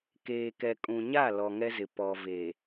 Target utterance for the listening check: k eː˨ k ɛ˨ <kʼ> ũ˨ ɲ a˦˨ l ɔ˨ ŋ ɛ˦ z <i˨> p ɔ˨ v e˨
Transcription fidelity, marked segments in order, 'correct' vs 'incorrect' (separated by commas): correct, incorrect